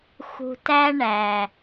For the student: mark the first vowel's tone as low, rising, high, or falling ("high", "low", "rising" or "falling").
low